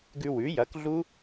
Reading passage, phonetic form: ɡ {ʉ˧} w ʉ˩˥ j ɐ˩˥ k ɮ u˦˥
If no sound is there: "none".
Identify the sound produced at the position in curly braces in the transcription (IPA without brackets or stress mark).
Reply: ʉ˧